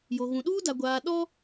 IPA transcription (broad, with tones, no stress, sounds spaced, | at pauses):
j o˨ ɣ ũ˨ ɗ uː˦ d a˨ ɡʷ aː˨ ɗ ɔ˦